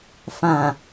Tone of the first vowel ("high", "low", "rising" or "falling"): low